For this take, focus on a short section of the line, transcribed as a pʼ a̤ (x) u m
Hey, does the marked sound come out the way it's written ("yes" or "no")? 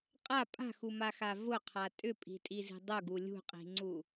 yes